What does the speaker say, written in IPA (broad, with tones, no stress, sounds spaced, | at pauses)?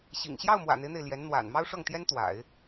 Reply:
ɕ ḭ˨˩ ŋ ɕ j ɑ˥˩ ʊ̯ m w ä̰˨˩ n̪ e˦ ɪ̯ n̪ e˩ ɪ̯ l j ɛ˧˥ n n̪ w a̰˨˩ n m ɑ˥ ʊ̯ ʂ ɤ˥˩ ŋ t̪ j ɛ˥ n t̪ w a̰˨˩˦ ɪ̯